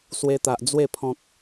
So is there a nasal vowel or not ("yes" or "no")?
yes